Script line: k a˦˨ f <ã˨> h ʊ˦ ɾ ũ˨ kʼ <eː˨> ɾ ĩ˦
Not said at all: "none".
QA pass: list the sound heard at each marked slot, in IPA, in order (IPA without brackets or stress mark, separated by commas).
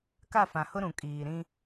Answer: ã˨, iː˨